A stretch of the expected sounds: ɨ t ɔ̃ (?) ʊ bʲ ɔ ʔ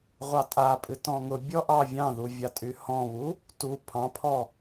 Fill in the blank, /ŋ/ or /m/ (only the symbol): ŋ